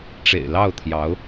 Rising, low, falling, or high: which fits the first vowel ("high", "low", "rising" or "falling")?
low